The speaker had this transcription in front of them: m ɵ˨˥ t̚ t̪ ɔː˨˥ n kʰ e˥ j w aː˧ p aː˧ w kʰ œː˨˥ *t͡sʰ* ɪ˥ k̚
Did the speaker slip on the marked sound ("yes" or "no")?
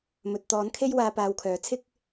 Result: no